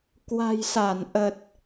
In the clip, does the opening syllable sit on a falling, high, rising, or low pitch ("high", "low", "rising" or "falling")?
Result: low